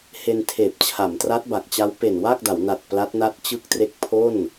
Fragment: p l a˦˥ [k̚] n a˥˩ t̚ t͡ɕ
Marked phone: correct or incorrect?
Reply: incorrect